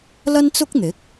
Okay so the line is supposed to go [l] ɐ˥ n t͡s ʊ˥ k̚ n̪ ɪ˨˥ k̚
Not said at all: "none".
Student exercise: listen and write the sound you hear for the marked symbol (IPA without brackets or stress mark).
l